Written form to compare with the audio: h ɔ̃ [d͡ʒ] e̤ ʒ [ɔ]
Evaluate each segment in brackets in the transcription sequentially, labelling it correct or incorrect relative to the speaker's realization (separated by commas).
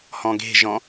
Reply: incorrect, incorrect